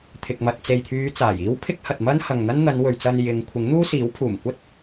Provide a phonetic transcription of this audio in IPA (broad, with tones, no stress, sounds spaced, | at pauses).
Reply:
t̪ʰ ɪ˧ k̚ m ɐ˨ t̚ t͡s e˨ j t̪ʰ yː˨˧ t͡s aː˨˩ j iː˥ w pʰ ɪ˥ k̚ h ɐ˨ t̚ m ɐ˥ n h ɐ˨ ŋ n̪ ɐ˥ n n̪ ɐ˨˧ n w ɵ˨ ɥ t͡s ɐ˧ n j ɪ˨˧ ŋ kʷʰ ɪ˨˥ ŋ n̪ uː˥ s iː˨˥ w pʰ uː˨˩ m kʷ ɐ˥ t̚